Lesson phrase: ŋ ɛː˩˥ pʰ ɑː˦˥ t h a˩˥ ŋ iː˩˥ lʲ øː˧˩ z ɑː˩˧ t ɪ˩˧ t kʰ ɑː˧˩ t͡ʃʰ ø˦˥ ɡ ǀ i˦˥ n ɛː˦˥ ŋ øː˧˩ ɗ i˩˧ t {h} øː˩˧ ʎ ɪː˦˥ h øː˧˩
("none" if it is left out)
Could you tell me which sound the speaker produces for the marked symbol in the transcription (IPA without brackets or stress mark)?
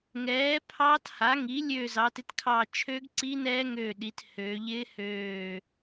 h